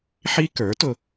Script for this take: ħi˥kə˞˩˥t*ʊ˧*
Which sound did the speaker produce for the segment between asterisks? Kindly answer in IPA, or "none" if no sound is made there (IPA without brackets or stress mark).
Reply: ʊ˧